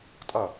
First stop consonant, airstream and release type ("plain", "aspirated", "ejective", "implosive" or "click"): ejective